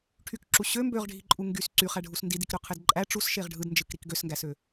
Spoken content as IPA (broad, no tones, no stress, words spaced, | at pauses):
ʈʰykǁu ɕø mbøʁɖʱiǃʼu ŋɡys ǀyχæɖʱus ndidikɾøqʰed ǃʼæ ʈ͡ʂusʃeʁ ɖʱɯdnd͡ʒɯkɾik ɡøsŋɡæsø